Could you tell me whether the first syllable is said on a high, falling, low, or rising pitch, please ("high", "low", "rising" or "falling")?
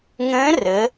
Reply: rising